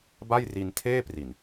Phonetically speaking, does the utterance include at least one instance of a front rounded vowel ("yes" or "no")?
no